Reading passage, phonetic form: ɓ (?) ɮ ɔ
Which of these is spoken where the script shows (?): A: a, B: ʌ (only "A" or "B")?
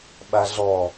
A